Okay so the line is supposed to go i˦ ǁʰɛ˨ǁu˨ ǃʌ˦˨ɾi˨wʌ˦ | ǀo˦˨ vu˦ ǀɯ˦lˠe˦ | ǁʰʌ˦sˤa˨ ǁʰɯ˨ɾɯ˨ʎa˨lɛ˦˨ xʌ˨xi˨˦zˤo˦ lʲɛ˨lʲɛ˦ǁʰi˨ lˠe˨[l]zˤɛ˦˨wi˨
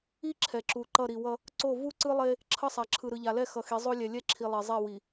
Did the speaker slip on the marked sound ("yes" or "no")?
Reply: yes